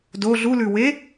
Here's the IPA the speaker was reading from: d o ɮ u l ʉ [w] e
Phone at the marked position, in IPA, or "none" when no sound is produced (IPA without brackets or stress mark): w